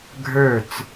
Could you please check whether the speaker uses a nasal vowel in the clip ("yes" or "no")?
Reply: no